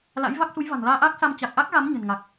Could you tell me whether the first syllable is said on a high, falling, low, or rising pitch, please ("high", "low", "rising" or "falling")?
rising